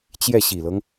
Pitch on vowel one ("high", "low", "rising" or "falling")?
falling